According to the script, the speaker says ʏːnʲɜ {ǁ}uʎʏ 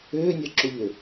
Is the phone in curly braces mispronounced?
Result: no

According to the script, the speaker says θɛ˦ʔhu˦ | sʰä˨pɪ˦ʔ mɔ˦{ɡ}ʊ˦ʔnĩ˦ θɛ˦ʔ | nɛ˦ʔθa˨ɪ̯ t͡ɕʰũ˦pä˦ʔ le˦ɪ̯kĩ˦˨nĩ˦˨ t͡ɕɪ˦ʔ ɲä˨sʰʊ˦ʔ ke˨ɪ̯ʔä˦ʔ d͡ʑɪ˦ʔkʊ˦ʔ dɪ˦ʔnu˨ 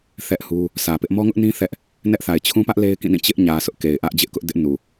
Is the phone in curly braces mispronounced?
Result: yes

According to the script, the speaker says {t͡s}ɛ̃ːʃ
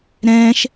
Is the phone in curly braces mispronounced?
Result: yes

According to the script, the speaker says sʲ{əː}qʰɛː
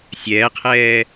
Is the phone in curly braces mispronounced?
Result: yes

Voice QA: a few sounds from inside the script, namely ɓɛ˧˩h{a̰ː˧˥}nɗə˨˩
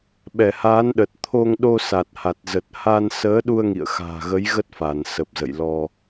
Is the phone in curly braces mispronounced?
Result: yes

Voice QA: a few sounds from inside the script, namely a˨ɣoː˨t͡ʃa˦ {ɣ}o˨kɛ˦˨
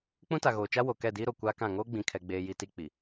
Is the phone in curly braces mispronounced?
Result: yes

